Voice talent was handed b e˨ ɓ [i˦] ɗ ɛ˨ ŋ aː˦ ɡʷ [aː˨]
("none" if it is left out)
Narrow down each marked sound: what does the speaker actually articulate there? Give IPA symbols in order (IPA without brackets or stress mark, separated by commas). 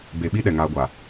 i˦, a˨